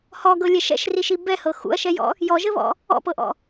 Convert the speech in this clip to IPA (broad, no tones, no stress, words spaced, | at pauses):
hɔɡɤlʲɛ ʃɛ̰ʃriʃi bɛhɤ xṵɐ̯ʃɛjɔ̰ | jɔʒɘβɔ̰ | ɔ̰pɤʔɔ̰